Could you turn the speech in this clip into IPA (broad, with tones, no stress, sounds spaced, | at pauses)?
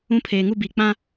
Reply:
ũ˦ pʰ eː˨ ŋ u˦ b i˨ k͡p ã˦